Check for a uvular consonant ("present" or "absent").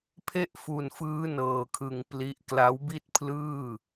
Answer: absent